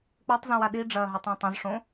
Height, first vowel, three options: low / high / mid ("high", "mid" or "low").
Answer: mid